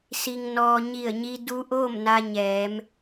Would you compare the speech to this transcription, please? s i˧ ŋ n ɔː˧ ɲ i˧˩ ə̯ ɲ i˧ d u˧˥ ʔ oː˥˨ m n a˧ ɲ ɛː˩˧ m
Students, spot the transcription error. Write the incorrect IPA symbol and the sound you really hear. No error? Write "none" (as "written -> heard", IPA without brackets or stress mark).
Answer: none